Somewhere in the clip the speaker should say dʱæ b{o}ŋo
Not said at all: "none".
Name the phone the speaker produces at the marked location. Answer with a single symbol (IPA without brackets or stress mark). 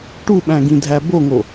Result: o